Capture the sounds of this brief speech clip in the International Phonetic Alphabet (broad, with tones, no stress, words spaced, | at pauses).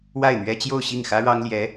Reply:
wa˥˩ɪ̯n̪ɥɛ˥ t͡ɕjo˥˧ʊ̯ɕi˥˩ŋxä˥ ɻɑ˥ŋljɛ˧˥